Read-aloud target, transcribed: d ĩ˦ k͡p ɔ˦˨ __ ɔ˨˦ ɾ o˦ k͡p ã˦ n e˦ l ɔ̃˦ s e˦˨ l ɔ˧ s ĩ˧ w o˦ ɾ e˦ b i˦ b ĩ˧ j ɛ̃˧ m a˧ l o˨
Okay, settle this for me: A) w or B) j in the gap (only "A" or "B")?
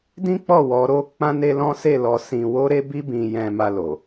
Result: A